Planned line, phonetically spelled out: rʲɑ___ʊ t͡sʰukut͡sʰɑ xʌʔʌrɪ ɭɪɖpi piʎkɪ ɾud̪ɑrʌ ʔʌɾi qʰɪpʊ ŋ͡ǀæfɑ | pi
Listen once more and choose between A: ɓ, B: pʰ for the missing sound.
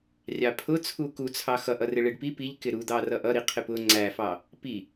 B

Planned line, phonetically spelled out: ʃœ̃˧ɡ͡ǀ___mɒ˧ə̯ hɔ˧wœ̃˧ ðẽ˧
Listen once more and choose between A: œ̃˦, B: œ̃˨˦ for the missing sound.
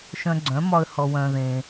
B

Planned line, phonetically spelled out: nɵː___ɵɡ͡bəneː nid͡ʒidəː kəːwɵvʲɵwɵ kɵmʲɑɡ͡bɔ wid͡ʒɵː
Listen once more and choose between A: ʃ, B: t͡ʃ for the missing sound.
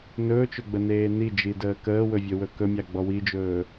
B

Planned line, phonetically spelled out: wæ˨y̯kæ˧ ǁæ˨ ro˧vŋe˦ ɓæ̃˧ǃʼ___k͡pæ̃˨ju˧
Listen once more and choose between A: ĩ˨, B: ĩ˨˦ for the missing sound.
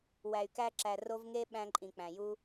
A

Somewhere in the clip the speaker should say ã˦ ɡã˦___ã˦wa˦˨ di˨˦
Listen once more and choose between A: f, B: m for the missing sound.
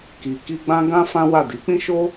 A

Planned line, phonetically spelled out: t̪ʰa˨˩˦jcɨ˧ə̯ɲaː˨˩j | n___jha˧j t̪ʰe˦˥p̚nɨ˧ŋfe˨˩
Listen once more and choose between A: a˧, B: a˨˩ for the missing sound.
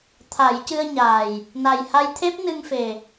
B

